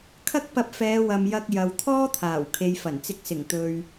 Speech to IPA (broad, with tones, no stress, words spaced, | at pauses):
kʰɐ˥k̚pɐ˧p̚fɛː˨˧wɐ˨m jɐ˧k̚jɐ˨w t̪ʰɔː˥t̪ʰaː˨˩w kʰe˨jfɐ˨˩nt͡sɪ˨˥k̚sɪ˨˩ŋ t̪ɵ˨ɥ